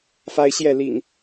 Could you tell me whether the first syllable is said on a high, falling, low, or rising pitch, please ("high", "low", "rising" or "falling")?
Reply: high